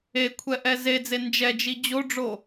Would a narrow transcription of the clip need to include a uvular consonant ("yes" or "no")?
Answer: no